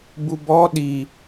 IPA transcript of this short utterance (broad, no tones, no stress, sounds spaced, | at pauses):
b u b ɔ ɗ i